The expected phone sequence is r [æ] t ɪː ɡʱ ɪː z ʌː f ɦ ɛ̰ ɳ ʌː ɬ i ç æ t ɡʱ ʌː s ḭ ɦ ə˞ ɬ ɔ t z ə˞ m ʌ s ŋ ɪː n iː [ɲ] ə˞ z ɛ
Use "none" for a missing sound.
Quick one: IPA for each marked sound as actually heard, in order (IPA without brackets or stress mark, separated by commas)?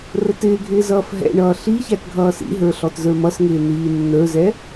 ə, nː